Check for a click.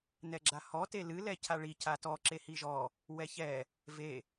present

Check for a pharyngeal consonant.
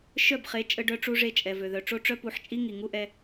present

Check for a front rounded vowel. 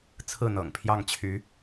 present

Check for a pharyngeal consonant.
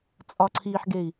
present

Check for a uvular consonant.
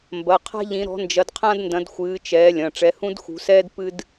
present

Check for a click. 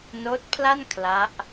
absent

